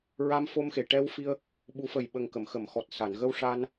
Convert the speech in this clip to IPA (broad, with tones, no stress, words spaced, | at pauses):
ɹa˧mfo˧mxe˨˩ʈɛ˧w fi˧ə̯ | ɓu˨˩˦fə˨˩jɓə˨˩ŋkə˨˩˨m xə˨˩˨mxɔ˨˩t̚sa˨˩˨nɣə˧w ʂa˧n